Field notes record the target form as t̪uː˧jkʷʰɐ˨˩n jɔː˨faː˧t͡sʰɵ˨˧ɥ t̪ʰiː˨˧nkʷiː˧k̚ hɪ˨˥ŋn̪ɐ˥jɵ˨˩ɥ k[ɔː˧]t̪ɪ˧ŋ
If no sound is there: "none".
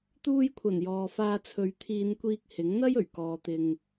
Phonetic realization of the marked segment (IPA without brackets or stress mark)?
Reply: ɔː˧